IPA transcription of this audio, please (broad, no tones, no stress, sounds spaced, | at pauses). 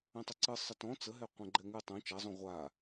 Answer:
ɛ̃ tˤ ɨ ǀ ɨ sˤ ə t ɔ̃ t͡s ə ɦ ɛ qʷ ɛ̃ ɡ͡ǃ ɛ ŋ ɨ tˤ õ t͡ʃ a zˤ õ ʁʷ a